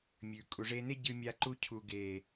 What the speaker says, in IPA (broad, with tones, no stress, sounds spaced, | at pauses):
mʲ ʉ˨ kʼ u˨ ʐ e˧ n e˦ ɟ ɨ˧ mʲ a˧ ǃ u˧ cʰ u˨ ɡ e˨